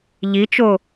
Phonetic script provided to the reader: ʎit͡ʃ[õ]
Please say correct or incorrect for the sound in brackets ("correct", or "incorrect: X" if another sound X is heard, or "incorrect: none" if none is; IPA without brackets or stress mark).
incorrect: o